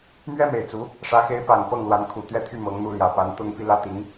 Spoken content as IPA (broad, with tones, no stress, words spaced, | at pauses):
mɥɛ˥me˨˩ɪ̯ t͡su˧˥ | ʂä˧˥xe˧˥ɪ̯pa˨˩n pɤ˥˩ŋlwa˧˥n kʰu˨˩t̪ɥɛ˥˧t̪ʰy˥˩ mɤ˧˥ŋn̪u˥˩ljä˨˩ pa˧˥nt̪ʊ˥ŋ pi˥lä˥ t̪i˧˥ŋ